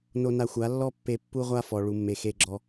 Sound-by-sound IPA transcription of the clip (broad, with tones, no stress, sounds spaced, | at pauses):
n o˧ n a˧ xʷ a˨˦ lː ɔ˦ pː e˧ pː u˦ ʁʷ a˦ f ɔ˨ ɭ u˨ mː e˨ x e˧ ɡ͡ǁ ɔ˧